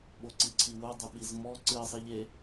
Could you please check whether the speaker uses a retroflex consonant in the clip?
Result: no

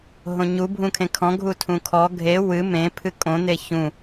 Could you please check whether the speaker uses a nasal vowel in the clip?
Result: yes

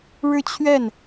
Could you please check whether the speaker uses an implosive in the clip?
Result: no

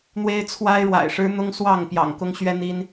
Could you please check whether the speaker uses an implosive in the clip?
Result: no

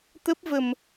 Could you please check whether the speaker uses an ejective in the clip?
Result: no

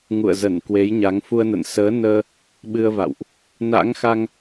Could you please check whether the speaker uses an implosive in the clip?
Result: yes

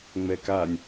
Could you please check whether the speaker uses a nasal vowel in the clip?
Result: no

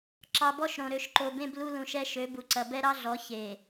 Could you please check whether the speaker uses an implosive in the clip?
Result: no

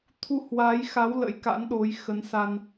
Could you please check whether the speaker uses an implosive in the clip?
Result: yes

